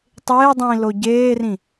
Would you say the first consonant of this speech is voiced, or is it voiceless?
voiceless